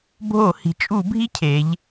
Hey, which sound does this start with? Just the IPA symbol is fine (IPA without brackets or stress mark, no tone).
bʱ